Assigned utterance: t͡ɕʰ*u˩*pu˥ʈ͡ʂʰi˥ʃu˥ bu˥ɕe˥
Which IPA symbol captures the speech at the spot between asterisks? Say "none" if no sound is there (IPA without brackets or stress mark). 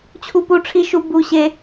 u˥